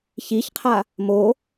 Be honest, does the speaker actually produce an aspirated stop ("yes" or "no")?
yes